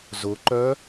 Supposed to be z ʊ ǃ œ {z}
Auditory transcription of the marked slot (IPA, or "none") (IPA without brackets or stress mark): none